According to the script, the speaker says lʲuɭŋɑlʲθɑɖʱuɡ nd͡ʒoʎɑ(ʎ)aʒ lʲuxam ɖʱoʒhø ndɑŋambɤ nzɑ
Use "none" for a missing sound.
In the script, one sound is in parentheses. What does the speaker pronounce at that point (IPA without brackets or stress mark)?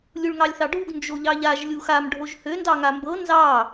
ʎ